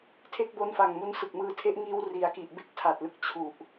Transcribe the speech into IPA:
tʰ e˦˥ k̚ b o˦˥ n f a˨˩ ŋ m u˦˥ n s ɯ˨˩ k̚ m ɯː˧ tʰ e˥˩ ʔ ŋ iː˧ w r i˨˩ a̯ k i˨˩ ʔ b e˦˥ k̚ tʰ a˨˩ t̚ l ɯ˨˩ k̚ t͡ɕʰ u˨˩ ʔ

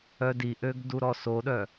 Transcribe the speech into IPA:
œ d i ʔ ø ɡ d u ɾ ɔ s o ɗ œ

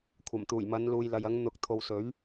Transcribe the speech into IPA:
kʷʰ ɐ˨˩ m t̪ uː˨˩ j m ɐ˨˧ n l uː˨ j l ɐ˨ j ɐ˨˧ ŋ n̪ ʊ˨˥ k̚ t̪ʰ o˨ w s ɵ˨˥ ɥ

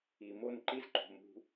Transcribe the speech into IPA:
i˨ m o˦ n ǃ i˦ z ǃ o̤˨ m ṳ˧

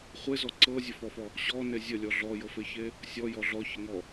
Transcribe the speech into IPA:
χʷ e z ɔ ǀ ɤ zʲ ə f ɔ f ɔ | ɕ ɔ n e zʲ ə lʲ ɔ ɮ ɔ j ɤ f e ç e | sʲ ɔ j ɔ ɮ ɔ ç ə ŋ ɔ

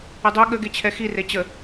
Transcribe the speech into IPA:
ə dˤ ø ɠ ə ɡ e t͡ɕʰ ɛ x i r e t͡ɕ ə

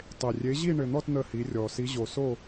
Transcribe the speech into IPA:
tˤ e˨˩ rʲ e˨˦ ʑ i˥˨ ɳ ɘ˨˩ n̪ ɔ˥˨ t n̪ ə˥˨ h i˨˦ rʲ ɔ˨˩ s i˨˦ ʑ o˨˩ s o˥˨

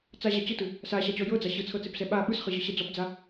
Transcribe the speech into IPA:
t͡s a ʑ a t͡ɕ ɯ t ɯ | s a ɕ a t͡ɕ ɔ j ɤ d͡z a ɕ ɯ t͡sʰ ɤ t͡s e p s ɛ ɓ a ɓ ɯ s χ ɯ ʑ ɯ ɕ ɛ d͡z ɔ p d͡z a

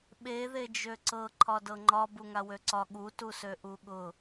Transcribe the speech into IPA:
ɓ e ð e d͡ʒ ø ǀ ɤ ǃʰ ɒ d ɤ ŋ͡ǃ ɒ b u ŋ a w ø ǀ ɒ ɠ u t u s ø ʔ u ɠ ʊ

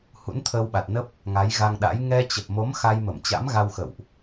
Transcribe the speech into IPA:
h ṵ˧˥ n t̪ʰ əː˧ w ɓ a˨˩ t̚ n ə˦˥ p̚ | ŋ a˨˦ j ɣ a˧ ŋ ɗ a̰˧˥ j ŋ ɛ˧ t͡ɕ ə˨˩ p̚ m o˨˦ m x a˧ j m ə˧˩ m t͡ɕ a̰˧˥ m ɣ a˧ w x ə̰˧˨ w ʔ

